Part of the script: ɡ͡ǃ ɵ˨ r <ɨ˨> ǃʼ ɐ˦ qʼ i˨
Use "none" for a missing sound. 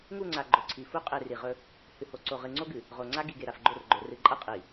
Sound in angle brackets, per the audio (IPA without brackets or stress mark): ɨ˨